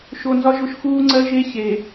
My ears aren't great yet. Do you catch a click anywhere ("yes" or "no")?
yes